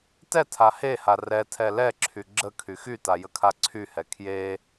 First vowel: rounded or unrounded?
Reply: unrounded